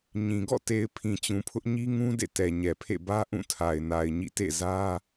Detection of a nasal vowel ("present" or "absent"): present